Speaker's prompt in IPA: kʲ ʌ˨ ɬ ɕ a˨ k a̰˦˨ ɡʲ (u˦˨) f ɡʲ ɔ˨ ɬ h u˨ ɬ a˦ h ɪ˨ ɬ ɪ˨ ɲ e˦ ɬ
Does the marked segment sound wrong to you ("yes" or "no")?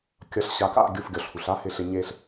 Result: no